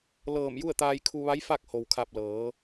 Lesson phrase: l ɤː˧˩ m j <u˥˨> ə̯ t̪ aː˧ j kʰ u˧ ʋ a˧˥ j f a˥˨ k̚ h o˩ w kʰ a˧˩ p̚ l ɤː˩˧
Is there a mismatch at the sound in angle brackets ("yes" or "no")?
no